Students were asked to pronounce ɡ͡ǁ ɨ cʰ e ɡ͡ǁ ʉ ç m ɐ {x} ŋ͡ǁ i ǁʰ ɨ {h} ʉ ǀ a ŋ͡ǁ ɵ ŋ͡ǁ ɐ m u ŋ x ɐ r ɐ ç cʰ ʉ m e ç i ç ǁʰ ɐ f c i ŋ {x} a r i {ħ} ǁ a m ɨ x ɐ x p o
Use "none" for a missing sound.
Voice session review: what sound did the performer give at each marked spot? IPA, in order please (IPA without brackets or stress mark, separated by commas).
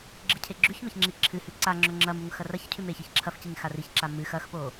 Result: ç, h, x, ç